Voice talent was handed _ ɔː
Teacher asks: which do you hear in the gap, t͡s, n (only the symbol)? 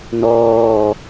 n